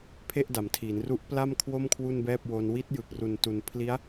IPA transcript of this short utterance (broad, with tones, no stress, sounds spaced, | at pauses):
pʰ e˥˩ ʔ d a˩˦ m tʰ iː˩˦ n r u˦˥ ʔ p l a˥˩ m kʰ w o˥˩ m kʰ w u˥˩ n b ɛː˥˩ p̚ w o˧ n w i˦˥ t̚ j ɯ˨˩ k̚ r u˨˩ n t u˩˦ n pʰ l i˦˥ a̯